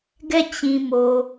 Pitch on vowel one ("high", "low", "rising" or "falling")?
falling